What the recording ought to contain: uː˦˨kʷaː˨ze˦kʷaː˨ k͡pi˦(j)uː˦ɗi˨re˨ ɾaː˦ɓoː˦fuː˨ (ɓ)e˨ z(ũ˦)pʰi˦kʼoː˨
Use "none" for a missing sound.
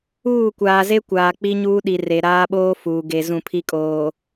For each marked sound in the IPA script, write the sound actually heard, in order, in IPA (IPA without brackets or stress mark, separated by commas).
ɲ, ɡ, ũ˦˨